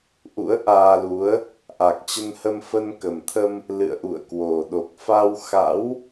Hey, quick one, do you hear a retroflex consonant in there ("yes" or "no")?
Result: no